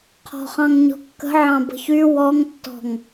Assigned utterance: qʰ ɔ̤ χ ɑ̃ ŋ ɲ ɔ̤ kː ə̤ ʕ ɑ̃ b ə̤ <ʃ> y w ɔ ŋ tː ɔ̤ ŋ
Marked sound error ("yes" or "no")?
yes